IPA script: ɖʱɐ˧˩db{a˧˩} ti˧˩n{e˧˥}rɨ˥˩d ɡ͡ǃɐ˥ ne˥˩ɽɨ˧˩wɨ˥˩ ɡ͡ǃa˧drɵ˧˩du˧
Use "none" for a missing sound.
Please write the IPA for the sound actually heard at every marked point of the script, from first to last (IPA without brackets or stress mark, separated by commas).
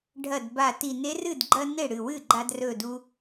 a˧˩, e˧˥